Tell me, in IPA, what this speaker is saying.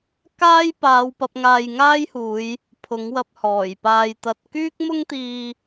k aː˥ j p aː˨˧ w p ɐ˨˥ p̚ ŋ aː˧ j ŋ aː˥ j h uː˨˧ j | pʰ ʊ˨˥ ŋ w ɐ˧ p̚ h ɔː˨˩ j p aː˧ j t̪ ɐ˧ t̚ k yː˥ k̚ m ʊ˥ ŋ t̪ iː˧

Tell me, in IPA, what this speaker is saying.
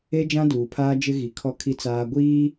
e˦ d͡ʒ ã˦ d uː˨ pʰ aː˦ d͡ʒ ɪ˦ ɣ i˨ kʰ ɔ˦ kʰ i˦ t͡s aː˦ ɡʷ iː˦

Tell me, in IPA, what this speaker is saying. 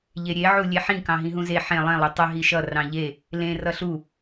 ʎ e ɾʲ e ʕ u lʲ e ħ ĩ k ɑ̃ ɦ ĩ ɦ ũ z e ħ ẽ lˠ ẽ lˠ ɑ tˤ ə ɦ i ʃ ʌ r ɑ̃ ʎ e | l ẽ r ʌ ɬ u

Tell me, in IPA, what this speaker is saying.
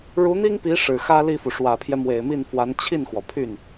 ɻ u˧˥ n̪ i˥ ŋ p i˧˥ ʂ ɻ̩˨˩ x ä˥ l i˥˩ f u˩ ʂ w ä˨˩ pʰ j ɛ˦ m w e˨˩ ɪ̯ m i˥˩ n f w a˧˥ n t͡ɕʰ i˥˩ n x w ɔ˩ pʰ y˥˩ n

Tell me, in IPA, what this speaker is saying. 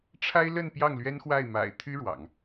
ʈ͡ʂʰ a˥ ɪ̯ l ə˥˧ n p j ɑ˥˩ ŋ l ɥ ɛ˥ n x w a˥˩ ɪ̯ m a̰˨˩ ɪ̯ t̪ʰ y˥ ɻ w ɑ̰˨˩˦ ŋ

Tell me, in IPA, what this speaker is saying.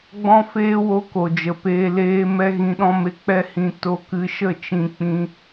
ɡ͡b ɔ̃˦ f eː˦ w o˦ k o˨ d͡ʒ ə˨ p eː˧ l eː˧ m ɛ˧ ɣ ĩ˧ ɗ ɔ̃˦ m e˧ k͡p ɛ˦ h ĩ˧ t o˧ k ɨ˧ ʃ ə˦˨ t͡ʃ ĩ˧ k͡p ĩ˧

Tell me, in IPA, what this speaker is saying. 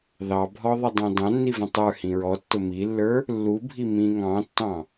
ð ɑ bʱ ɔ ðˤ ɪ dˤ ɑ̃ d ɑ̃ nː i v ə̃ tˤ ə˞ h ĩ ɹ ɔ tː ʊ m i lː ə˞ | lː u bʱ i m ĩ ŋ ɑ̃ tː ɑ̃

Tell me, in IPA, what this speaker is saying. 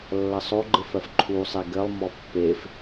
lː ɐ sˤ o ɡ͡ǃ ɘ f ɜ f ǃʰ u sˤ e ɡ ɘ lˠ m ɔ pː e f

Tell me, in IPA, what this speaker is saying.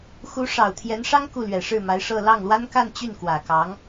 x u˧˥ ʂ ɑ˨˩ ʊ̯ t̪ʰ j ɛ˧˥ n ʂ ɑ˥ ŋ k u˥˩ l ɥ ɛ˨˩ ʂ ɻ̩˥˩ m a˧˥ ɪ̯ ʂ ɤ˥˧ l ɑ˥˩ ŋ l w a˥ n k a˥˧ n t͡ɕ y˥˩ n k w ä˨˩ k ɑ˧˥ ŋ

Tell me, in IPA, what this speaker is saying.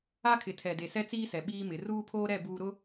a˦ kʰ ɪ˨ tʰ ɛ˨ d e˨ s ɛ˦ t͡s iː˦ s ɛ˨ ɓ iː˦ m ɪ˨˦ r uː˦ pʰ oː˦ ɾ ɛ˦˨ b uː˦ ɾ ʊ˦

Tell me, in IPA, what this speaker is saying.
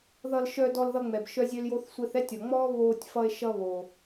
ð ʌ˧ l ʃ œ˧ d ɔ˧ l ð ʌ˧ ŋ͡m ɛ˩ b ʃ œ˥ zʲ ø˥ l j o˥ θ sʷ ɛ˧ θ ɛ˥ tʲ ɔ˩ ŋ͡m ɔː˥ β oː˧ tʲ f ʌ˧ e̯ ʃ ʌ˧ β o˩

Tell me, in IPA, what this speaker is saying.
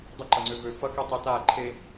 dˤ ə ǃ ɐ ŋ͡ǀ ø v ø f ɐ k i tˤ e t a ǃʰ e

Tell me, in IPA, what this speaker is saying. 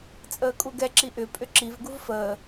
t͡sʼ əː kʼ u ɡ ɛ ǁ i ʔ ʏ pʼ ʏ ǁ i v ɡ u v f əː

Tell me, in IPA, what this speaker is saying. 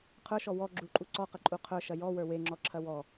qʰ ə˞ ʃ ɔ w ɔ ɡ͡ǁ u ǃʼ u ǀ ɔ q ɐ ǃʼ u qʰ ə˞ ʃ ɐ j ɔ w ə˞ w e ŋ͡ǁ ɔ ǁʰ ɐ w ɔ

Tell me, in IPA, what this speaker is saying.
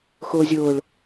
x ʊː zʲ ʊː ɭ

